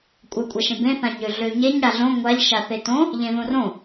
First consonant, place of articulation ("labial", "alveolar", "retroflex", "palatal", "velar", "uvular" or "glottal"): velar